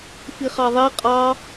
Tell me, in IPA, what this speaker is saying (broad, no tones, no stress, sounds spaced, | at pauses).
f i χ ɑ ðˤ i qʼ ɑ